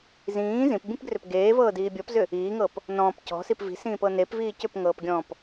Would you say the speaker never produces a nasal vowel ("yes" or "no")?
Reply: no